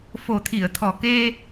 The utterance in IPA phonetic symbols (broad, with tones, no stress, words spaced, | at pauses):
fo˨˩t̪ʰi˨˩˨ə̯t̪ʰɔ˨˩ke˧